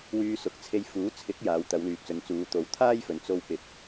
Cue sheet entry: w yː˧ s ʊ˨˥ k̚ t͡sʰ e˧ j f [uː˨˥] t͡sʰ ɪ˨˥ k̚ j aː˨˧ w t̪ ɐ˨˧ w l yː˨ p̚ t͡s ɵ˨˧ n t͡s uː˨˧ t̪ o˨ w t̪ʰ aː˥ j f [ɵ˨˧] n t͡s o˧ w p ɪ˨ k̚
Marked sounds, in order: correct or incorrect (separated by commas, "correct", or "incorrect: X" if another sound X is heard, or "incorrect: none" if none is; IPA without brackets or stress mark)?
correct, correct